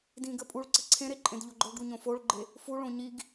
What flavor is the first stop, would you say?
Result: plain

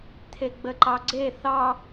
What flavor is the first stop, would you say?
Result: aspirated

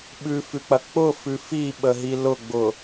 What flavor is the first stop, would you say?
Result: implosive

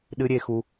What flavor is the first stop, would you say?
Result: implosive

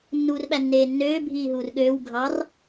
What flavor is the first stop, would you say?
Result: implosive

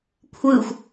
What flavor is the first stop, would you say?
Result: aspirated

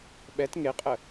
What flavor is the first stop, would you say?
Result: implosive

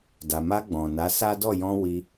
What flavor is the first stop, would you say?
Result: plain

